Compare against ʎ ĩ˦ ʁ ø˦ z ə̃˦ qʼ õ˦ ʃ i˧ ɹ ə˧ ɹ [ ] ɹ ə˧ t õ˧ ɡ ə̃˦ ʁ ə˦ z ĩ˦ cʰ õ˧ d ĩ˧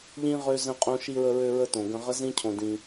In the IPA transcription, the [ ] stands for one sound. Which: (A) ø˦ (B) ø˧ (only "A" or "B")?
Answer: B